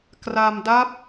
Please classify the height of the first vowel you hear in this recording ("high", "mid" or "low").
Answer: low